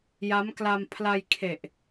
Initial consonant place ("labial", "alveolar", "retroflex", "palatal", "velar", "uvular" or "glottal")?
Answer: palatal